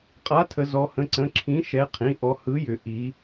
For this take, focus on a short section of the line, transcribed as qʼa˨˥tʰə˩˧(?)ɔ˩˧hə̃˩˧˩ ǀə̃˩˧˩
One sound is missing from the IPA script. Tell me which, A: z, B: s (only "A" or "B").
A